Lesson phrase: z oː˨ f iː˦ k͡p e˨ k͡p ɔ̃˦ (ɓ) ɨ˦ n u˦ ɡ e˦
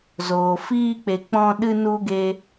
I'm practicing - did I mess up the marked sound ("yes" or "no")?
yes